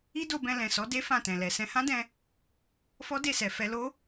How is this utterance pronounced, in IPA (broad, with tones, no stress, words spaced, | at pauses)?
i˦do˧bɛ̃˧ lɛ̃˨sɔ˨˦de˦ fã˦˨tɛ̃˨lɛ˨ sɛ̃˧hã˦dɛ̃˧ | fɔ˦de˦˨sɛ˨ fɛ˧lo˦